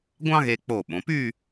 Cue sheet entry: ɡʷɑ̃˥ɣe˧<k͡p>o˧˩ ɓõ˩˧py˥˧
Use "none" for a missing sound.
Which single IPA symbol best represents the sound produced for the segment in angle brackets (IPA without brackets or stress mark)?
k͡p